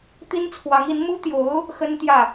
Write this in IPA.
t̪i˥nt͡sʰwɑ˧˥ŋi˧˥n mu˥t̪jo˧˥ʊ̯ | xə˥nt̪jä˥˩

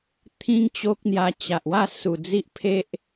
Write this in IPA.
t̪ʰĩ˦ŋt͡ɕo˦k̚n̪ja˧ t͡ɕa˨ʔwa˥˧ su˨˩ d͡zi˦ʔpʰe˦ʔ

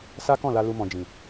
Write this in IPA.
sa˦kɔ̃˦˨la˧ lu˧mɔ̃˨d͡ʒĩ˨

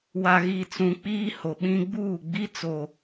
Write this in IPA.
wa˨ɣi˨t͡sũ˨ k͡piː˦ho˨ɓĩ˦ ɡ͡buː˦˨ɡ͡bi˦t͡so˨

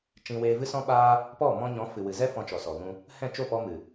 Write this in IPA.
t͡ʃĩ˧weː˧vɨ˦ sɔ̃˦ɓaː˦ | pɔ˦˨mɔ̃˧ɲɔ̃˨˦ fɨ˨wɨ˨zɛ˦ fɔ̃˧t͡ʃɔ˨sɔ˨ɣũ˧ | hɛ̃˦˨t͡ʃo˦˨pɔ˧ mɨ˨

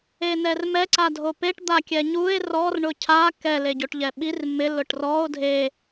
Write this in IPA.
enɛrmɛ ǀadʱopeʈ d̪akʲɛɲue̯ rɔr ɳʊcʰa kɛ leɟoʈʎɛɓir mɪ lʊʈrɔo̯ dʱe

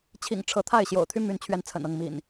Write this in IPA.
t͡ɕʰḭ˨˩ŋʈ͡ʂʰɤ˨˦ t̪ʰa˥˨ɪ̯ ɕjo̰˨˩ʊ̯t̪ʰy˦my˨˦nt͡ɕʰɥɛ˨˦n t͡sʰə̰˨˩nɤ˥˨ŋmḭ˨˩n

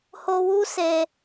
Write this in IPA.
ho˧ wu˦se˧

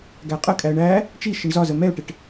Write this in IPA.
ɡæqʼəkʼæə̯ ɳæ | t͡ʃi ʃɪɳzɒzə mɛʊ̯ʈɪʈ

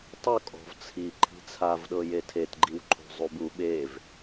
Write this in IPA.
tˤokʼɔ̤v t͡sʰi ǃʰi̤t͡sʰavɗɤje tʰetɡ͡ǃiwǃʰo̤ zˤubu ɓev

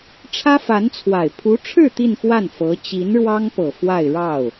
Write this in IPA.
ʈ͡ʂʰä˥fa˧˥nt͡sʰwa˨˩ɪ̯ pʰu˧˥ʈ͡ʂʰɻ̩˥˧ t̪i˥˧nxwa˥˩n fɤ˧˥ t͡ɕi˧˥nɻwɑ˥ŋpɤ˨˩ fwa˥˧ɪ̯ɻɑ˥˩ʊ̯

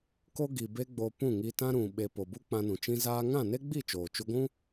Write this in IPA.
ko˧ ɡi˨be˦ɡ͡bo˧ pũ˦˨ŋi˧tã˦ ɾũ˨ ɓe˨ po˨bu˦k͡pã˧nũ˨ t͡ʃĩ˧ zaː˦ ŋã˦˨ne˦ɡ͡bi˦˨ t͡ʃoː˨t͡ʃu˧ɡʷũ˦

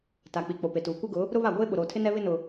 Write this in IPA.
ta˨k͡pi˨ k͡po˨pe˨tuː˨ kʷɪ˦ɡʊ˨˦ | ɾʊ˦βa˦˨ ɡʷeː˦ ɓʊ˨ɾoː˨tʰɪ˦ nɛ˦βɪ˦nʊ˨

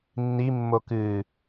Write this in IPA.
nːimːo kɨ

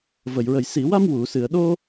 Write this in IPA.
və˨˩˨jɹə˨˩j si˨˩˨wa˧m wu˨˩˨sɨ˨˩˨ə̯ɗo˧

